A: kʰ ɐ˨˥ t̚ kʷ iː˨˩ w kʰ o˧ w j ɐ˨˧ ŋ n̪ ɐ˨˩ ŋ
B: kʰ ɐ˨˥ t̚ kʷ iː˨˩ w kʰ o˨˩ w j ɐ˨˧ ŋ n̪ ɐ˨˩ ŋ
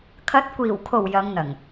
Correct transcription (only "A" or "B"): B